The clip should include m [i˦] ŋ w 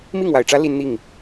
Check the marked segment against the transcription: incorrect: i˥˨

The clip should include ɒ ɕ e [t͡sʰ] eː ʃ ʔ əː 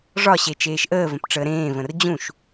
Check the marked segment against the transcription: incorrect: t͡ʃ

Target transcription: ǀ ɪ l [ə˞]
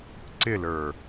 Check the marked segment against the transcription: correct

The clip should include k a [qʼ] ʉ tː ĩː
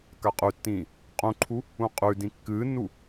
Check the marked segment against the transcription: correct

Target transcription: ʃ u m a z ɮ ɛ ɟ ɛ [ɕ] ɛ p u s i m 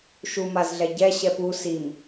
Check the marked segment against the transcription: correct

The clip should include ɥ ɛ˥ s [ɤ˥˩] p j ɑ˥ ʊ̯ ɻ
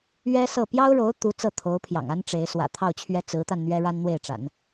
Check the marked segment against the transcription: correct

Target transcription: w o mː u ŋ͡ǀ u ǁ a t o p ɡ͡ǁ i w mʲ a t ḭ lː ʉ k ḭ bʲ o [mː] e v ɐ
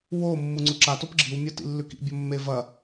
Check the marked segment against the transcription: correct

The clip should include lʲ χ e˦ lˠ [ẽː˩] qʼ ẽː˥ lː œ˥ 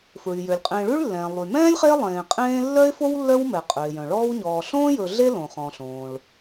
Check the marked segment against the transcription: incorrect: ẽː˨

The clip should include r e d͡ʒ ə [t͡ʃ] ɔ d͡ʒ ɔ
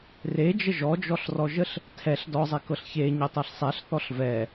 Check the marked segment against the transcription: incorrect: ʒ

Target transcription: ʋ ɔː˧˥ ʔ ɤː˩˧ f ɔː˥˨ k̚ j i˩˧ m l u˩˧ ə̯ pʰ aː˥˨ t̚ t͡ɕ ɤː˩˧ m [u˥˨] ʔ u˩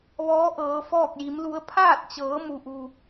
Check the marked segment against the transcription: incorrect: u˩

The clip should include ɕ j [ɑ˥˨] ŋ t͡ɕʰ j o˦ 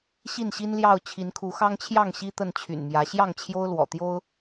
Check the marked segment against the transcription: correct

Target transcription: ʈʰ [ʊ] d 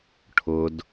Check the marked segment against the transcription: correct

